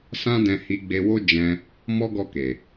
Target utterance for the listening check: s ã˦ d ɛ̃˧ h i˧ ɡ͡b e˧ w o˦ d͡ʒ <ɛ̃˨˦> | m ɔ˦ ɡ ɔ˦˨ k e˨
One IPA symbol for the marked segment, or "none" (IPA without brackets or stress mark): ɛ̃˧